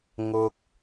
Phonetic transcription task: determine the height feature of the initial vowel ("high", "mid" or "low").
high